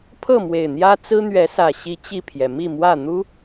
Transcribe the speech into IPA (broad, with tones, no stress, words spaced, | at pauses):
pʰɤ˥˨ mwe˨˩ɪ̯n̪jä˦ t͡sɹ̩˦n̪ɥɛ˨˦sä˨˩ ɕi˨˦ t͡ɕi˥˨pʰjɛ˩ mi˥˨mwä˥˨n̪u˦